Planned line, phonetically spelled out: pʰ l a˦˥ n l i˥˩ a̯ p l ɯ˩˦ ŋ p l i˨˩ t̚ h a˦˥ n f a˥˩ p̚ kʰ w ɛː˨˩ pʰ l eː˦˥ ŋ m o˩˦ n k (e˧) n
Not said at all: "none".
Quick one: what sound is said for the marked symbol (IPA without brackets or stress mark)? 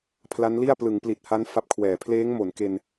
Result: e˧